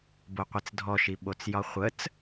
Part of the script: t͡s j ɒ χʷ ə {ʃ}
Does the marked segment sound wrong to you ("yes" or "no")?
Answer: yes